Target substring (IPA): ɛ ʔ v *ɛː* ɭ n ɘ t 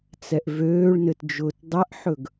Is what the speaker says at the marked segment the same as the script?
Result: no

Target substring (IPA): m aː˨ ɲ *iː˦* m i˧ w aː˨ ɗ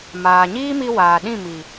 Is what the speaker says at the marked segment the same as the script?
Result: yes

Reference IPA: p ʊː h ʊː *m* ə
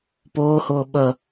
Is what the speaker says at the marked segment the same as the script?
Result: no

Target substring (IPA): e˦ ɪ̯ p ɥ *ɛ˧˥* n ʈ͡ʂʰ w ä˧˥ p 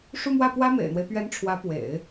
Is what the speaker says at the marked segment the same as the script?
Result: yes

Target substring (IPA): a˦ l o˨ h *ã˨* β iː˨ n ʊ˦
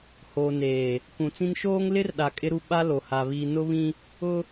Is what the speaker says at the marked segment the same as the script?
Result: no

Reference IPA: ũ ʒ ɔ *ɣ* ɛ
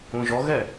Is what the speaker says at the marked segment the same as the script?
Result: yes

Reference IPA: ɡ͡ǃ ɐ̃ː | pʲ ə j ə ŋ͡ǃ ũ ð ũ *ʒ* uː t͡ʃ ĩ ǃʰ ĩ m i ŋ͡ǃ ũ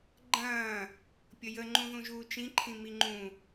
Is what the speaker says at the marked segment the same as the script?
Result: yes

